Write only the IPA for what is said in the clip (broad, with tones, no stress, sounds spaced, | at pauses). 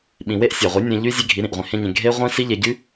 ɓ ĩ˨ w e˦ ʔ sʲ ɑ˨ ʁʷ i˨˦ nʲ ẽ˧ ʎ y˦ zʲ e˦ ɡʱ i˨˦ ɾ ĩ˨ ʔ ʁʷ ĩ˨ h ẽ˦ ɲ ẽ˧ ɡʱ e˦ ʁʷ ĩ˦ s i˦ ʎ e˧ ɟ y˦